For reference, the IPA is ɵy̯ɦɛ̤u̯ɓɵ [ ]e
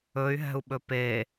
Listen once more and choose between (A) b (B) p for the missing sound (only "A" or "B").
B